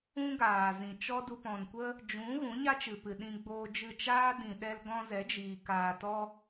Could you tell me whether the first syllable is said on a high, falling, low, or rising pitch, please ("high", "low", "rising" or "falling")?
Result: high